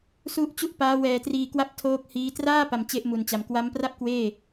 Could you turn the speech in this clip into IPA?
s u˦˥ ʔ t͡ɕ u˥˩ ʔ p aː˦˥ w ɛː˧ t r iː˧ k w a˥˩ p̚ tʰ oː˦˥ k̚ h iː˦˥ t r aː˥˩ p a˧ m t͡ɕ e˦˥ ʔ m u˨˩ n t͡ɕ a˩˦ m k w a˦˥ m p r a˥˩ p̚ k w eː˥˩

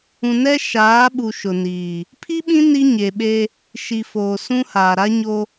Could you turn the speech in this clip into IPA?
ũ˨ n ɛ˦ ʃ aː˨˦ ɓ u˨ ʃ ʊ˨ n iː˨ | pʰ i˦ ɓ ĩ˦ n i˦ ɲ e˨ ɓ e˦ | ʃ i˨ f oː˨ s ũ˦ h aː˨ ɾ a˦ ɲ o˦

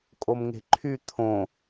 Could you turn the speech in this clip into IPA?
kʼ o m ŋ e̤ ǃʰ y t̪ʰ õ

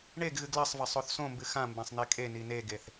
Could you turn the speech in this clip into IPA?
ɳ e ɡ ɣ ɨ ɡ l ɐ sˤ v ɐ sˤ o θ s õ m b ɨ x ã m b ã sˤ n̪ e kʼ e n i n e ɡ e θ

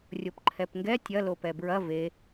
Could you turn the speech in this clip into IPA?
rʲ o p ǃʰ ɛ p ŋ ɡ ɛ tʲ ɐ l o p ɛ b ɹ ɐ v e

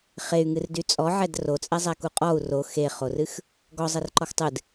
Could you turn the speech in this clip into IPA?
χ e y̯ ŋ ɨ r d y t͡sʼ ɔ ʕ ɛ d r o t͡sʼ ɛ zˤ ɛ k u qʼ ɔ u̯ r o x e χ o r ɨ x | ɡ ɔ zˤ e r ǃ ɔ x tˤ ɨ d

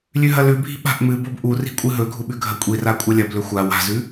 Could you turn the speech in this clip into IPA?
lʲ ʉ ɦ ɐ l ʉ bʱ i̤ ɓ a̤ ʔ m ɨ b o b ʔ u r i̤ kʷʼ ɨ ɦ ɵ ɡʱ u ɓ ʉ ɡʱ ɐ kʷʼ i r a kʷʼ ɐ lʲ ɐ b l ɵ xʷ a w a̤ z ʉ

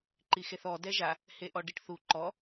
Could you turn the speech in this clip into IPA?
ǃ i x e θ ɔ d ɛ ʒ a | h e ʔ ɔ ɖ i ʈ θ u ǃ ɔ

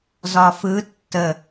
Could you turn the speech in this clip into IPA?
z ɒ f ɯ tː ə

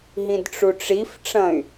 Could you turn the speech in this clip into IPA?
ɦ ĩ d ʈ͡ʂ u ʈ͡ʂ i f ʈ͡ʂ ɐ̃ y̯

